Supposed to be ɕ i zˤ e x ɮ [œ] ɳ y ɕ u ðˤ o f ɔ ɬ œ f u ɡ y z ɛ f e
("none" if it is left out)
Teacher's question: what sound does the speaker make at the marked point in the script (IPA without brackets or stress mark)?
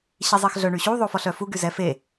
œ